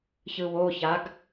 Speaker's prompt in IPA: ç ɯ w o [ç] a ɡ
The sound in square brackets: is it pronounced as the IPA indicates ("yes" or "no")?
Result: yes